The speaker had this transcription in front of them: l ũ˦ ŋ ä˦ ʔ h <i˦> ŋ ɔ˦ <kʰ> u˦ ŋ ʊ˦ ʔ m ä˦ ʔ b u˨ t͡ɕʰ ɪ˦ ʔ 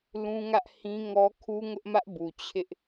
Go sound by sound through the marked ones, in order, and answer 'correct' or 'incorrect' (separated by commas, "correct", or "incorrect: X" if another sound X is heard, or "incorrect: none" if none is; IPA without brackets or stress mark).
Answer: incorrect: ĩ˦, correct